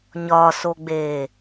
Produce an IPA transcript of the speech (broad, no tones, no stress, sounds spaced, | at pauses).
ɲ ɒ s o ɡ͡b e